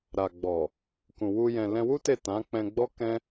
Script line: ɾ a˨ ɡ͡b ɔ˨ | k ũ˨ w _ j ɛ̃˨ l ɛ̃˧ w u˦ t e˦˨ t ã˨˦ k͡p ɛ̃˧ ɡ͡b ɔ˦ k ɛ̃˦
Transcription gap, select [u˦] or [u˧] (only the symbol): u˧